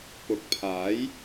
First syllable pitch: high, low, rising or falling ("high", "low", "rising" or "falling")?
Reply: rising